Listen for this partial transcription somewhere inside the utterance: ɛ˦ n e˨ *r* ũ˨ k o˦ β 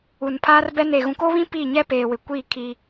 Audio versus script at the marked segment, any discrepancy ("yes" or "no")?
yes